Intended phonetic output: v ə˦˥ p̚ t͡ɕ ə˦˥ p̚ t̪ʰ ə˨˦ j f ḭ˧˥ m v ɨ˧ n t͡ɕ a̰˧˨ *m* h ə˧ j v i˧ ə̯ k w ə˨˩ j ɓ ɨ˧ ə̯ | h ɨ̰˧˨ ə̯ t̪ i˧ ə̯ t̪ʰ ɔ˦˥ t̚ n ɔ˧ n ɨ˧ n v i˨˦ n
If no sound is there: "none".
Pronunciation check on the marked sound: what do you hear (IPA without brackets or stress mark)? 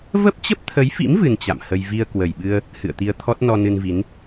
m